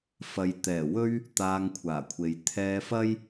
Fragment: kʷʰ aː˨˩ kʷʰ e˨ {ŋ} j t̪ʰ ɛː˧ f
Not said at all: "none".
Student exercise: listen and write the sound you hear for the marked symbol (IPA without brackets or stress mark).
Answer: none